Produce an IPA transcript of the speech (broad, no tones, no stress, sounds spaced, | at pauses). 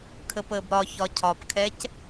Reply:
kʰ ə p əː b ɾ ɒ ç ɒ cʰ ɒ p kʰ ɛ c